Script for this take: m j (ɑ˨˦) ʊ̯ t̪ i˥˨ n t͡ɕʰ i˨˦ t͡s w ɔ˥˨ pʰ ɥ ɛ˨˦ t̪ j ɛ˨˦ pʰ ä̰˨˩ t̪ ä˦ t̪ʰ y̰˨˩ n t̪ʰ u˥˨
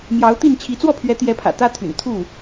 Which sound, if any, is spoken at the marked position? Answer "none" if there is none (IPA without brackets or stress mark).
ɑ˨˦